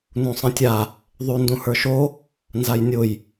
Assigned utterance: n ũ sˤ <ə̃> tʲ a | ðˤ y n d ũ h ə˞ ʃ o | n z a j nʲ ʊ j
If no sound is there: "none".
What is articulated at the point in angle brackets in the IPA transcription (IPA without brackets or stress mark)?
ə̃